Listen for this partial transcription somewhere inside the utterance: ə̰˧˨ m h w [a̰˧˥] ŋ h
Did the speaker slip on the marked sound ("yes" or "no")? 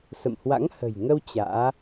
no